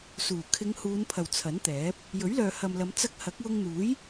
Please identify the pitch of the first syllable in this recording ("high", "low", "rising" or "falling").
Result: low